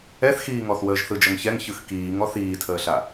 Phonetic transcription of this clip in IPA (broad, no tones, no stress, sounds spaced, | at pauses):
ɛ θ x iː ŋ ɔ θ w əː ʒ θ ɯ d͡ʒ ʌ ŋ ç ɛ ŋ ç ɯ x k iː ŋ ɔ θ iː tʰ əː ɬ a